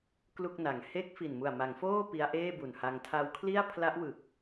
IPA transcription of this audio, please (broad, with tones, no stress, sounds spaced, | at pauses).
k l u˥˩ k̚ n a˨˩ ŋ h e˦˥ k̚ f i˨˩ n m u˨˩ a̯ m a˩˦ ŋ f oː˥˩ p i˦˥ a̯ ʔ eː˥˩ b u˨˩ n h a˧ ŋ tʰ a˧ w kʰ l i˥˩ a̯ pʰ l a˦˥ ʔ w ɯ˨˩ k̚